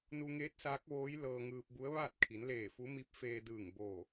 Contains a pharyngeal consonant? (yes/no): no